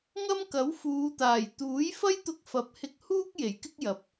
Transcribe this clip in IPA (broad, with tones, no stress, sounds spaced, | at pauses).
ŋ ɐ˥ m k ɐ˨˥ w f uː˨˧ t̪ aː˨˩ j t̪ uː˨˥ j f ɐ˥ j t̪ ʊ˧ k̚ f ɐ˨˥ p̚ h ɪ˧ k̚ h uː˥ k̚ j e˨˩ j k ɪ˥ k̚ j ɐ˨ p̚